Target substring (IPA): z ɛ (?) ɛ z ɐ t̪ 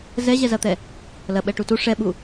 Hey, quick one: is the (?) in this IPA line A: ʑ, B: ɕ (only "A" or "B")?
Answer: A